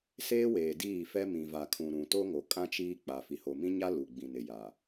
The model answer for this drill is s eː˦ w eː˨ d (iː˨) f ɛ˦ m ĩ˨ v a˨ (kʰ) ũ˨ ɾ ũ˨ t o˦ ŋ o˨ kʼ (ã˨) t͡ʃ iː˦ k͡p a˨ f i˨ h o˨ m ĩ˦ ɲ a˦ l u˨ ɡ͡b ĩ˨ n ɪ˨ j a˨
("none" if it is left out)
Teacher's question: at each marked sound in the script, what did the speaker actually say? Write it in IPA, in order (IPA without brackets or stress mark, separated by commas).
iː˦˨, kʰ, ã˦